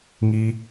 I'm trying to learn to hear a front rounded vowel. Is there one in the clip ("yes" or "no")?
no